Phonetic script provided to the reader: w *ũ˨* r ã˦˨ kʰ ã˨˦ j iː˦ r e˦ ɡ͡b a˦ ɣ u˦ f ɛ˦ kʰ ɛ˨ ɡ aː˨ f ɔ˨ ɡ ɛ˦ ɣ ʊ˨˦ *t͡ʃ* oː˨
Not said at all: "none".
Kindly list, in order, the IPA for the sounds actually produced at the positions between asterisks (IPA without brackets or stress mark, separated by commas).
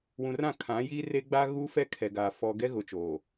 ũ˨, t͡ʃ